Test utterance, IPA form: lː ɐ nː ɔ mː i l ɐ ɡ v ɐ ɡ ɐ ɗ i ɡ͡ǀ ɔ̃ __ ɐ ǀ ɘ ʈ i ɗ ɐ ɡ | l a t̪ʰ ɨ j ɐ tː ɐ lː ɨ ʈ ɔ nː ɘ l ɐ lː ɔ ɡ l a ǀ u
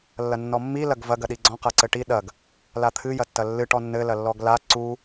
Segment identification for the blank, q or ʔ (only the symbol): q